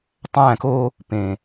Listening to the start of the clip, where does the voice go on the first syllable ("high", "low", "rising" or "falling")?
falling